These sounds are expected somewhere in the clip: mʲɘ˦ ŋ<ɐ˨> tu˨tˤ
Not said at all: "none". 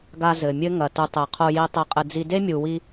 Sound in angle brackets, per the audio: ɐ˨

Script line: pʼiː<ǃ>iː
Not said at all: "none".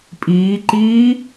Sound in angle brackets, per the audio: ǃ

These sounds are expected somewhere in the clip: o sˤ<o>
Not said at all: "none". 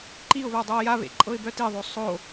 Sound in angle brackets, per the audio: o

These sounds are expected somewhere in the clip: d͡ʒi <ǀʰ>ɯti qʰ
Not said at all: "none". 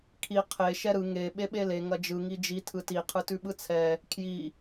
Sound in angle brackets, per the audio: tʰ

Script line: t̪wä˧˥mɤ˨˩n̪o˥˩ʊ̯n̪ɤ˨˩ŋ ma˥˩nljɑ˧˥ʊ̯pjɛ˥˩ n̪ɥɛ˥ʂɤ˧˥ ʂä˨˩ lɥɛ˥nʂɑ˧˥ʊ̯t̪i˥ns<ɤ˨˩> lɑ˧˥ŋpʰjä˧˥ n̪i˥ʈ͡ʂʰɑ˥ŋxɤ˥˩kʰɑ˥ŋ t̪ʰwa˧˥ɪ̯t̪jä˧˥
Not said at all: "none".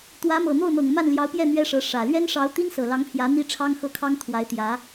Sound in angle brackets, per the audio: ɤ˨˩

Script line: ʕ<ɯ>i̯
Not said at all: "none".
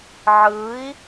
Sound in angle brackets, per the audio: ɯ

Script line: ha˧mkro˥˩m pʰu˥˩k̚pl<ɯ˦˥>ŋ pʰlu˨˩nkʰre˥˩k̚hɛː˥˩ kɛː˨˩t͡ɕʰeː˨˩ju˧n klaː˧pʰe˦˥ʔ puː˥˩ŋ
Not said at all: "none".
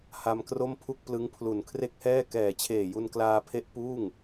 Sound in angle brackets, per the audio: ɯ˦˥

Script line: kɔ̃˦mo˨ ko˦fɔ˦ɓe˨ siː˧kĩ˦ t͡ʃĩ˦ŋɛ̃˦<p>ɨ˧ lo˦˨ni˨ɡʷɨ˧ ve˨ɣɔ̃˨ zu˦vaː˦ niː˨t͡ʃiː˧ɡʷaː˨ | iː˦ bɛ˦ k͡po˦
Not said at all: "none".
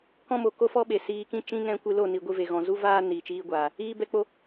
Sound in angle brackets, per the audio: kʷ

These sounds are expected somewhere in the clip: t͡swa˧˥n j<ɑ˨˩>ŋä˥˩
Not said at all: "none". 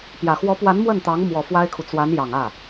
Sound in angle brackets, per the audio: ɑ˨˩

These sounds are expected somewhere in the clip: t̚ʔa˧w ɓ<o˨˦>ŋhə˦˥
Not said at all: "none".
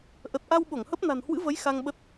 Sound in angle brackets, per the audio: o˧˩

